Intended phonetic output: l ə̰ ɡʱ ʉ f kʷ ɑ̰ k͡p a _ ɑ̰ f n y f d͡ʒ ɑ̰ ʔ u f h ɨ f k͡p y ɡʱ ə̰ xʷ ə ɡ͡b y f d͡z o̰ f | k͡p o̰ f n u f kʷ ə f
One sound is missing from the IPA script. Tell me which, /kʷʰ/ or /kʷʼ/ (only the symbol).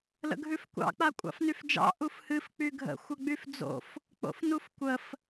kʷʼ